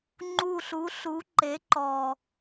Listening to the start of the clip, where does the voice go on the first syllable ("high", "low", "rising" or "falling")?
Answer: falling